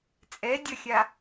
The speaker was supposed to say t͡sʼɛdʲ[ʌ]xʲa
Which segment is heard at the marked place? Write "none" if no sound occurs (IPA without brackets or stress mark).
ʌ